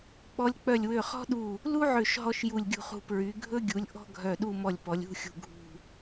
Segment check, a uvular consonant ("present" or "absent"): present